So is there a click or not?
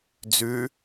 no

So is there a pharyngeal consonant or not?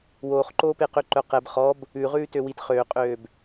no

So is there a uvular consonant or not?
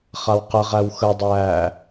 yes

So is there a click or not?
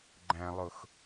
yes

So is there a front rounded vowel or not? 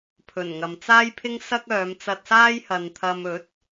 yes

